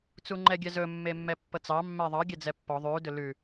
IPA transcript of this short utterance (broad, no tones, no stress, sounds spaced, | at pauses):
t͡s u ŋ͡ǃ ɛ ɡʲ ɛ z ɵ mː e mː ɛ pː ɤ t͡s ɑ mː ɛ ðˤ ɑ ɡʲ ɛ d͡z ɛ pː ɔ ðˤ ʉ d ɵ l ʉ